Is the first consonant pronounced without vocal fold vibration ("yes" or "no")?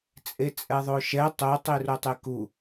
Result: yes